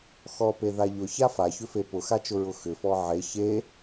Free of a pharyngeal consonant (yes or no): no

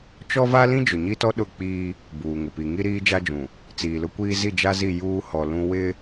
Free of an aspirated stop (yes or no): yes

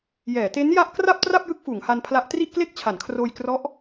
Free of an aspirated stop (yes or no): no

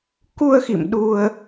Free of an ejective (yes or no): yes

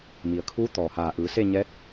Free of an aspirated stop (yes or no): no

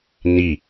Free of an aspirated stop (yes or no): yes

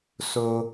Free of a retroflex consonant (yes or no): yes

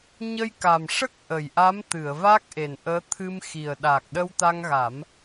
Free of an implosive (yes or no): no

